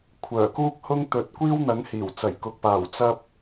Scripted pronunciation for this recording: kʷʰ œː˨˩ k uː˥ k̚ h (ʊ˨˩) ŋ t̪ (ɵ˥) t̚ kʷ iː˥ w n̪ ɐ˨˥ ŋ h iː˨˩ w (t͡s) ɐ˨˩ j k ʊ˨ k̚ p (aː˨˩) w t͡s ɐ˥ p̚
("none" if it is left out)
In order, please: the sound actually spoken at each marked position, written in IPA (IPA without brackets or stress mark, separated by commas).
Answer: ʊ˥, ɵ˨˥, t͡s, aː˨˩